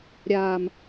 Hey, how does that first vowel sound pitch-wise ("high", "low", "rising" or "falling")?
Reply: low